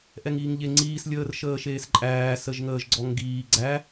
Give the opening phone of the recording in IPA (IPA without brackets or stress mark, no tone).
ʔ